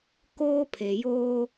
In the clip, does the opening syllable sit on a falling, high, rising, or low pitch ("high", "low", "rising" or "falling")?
high